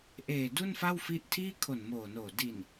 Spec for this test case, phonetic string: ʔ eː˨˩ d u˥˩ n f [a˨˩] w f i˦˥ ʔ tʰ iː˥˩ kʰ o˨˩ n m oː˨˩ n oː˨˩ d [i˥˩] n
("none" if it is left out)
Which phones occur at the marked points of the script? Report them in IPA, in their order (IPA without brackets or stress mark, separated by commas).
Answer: a˥˩, i˨˩